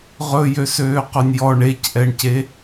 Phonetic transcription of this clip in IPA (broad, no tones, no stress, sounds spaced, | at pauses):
ʁ ɵ j ø s øː q ɵ nʲ j ɔ ɳ e c ʔ ɛ ɳ c e